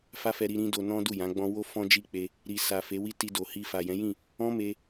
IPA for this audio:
f a˦ f ɛ˧ ɾ i˧ ɾ ĩ˧ d o˧ n ɔ̃˦ d u˦˨ j ã˨˦ ɡ͡b ɔ̃˦ w o˧ f ɔ̃˦ d͡ʒ i˦˨ k͡p e˧ | ɾ i˨ s a˨ f e˨˦ w i˦ t i˧ d o˨ h i˧ f a˨ j ɛ̃˨˦ j ĩ˦˨ | ɔ̃˦ m e˧

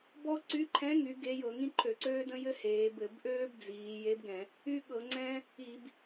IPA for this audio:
b ɔ˥ ǀ y˧˥ ǃʰ ɛ̃˧˥ ŋ y˩˧ ɡ e˧˥ j ɤ˧˩˧ ŋ ĩ˥ ǃʰ ø˧˩˧ ǀ øː˥ d ə̃˥ j ɘ˥ h eː˩˧ b ɘ˧˩˧ b ʔ øː˥ b d͡z iː˩˧ j e˧˥ b ɡ ɛ̃˧˩˧ | y˥ ɠ ɤ˧˩˧ ŋ͡ǀ ɛ̃˥ | i˧˩˧ b

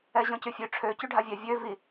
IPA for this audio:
ɛ ʑ ɔ̃ c y fʲ ø ʈ͡ʂʰ ø c y ɖʱ a vʲ ɛ vʲ ø v i

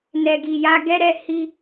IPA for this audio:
n ɛ˨ ɡ i˨ j a˧ ɡ ɛ˧ ɾ ɛ˨ h i˧

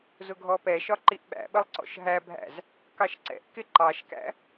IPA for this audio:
z ʊ ɡʱ ɔ p ɛ ʃ ɒ ǃ i ʔ ɓ æ̰ ɓ ə lˠ ǀ ɔ̰ ʃ ɦ æ bʱ æ̰ z | k ɑ ʃ ǀ ɛ̰ ʔ k ɪ ǃ ɑ ʃ k æ̰

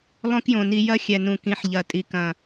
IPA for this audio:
lˠ õ˦ k j õ˨ n i˧ j ɐ˦ xʲ ɛ˨ n ũ˨ k ĩ˨˦ ħ ʎ ɐ˨ tʼ i˨ k ɐ̃˨

